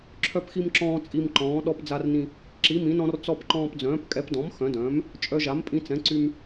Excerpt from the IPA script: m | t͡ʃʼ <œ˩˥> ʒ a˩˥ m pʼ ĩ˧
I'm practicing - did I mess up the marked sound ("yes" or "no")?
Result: yes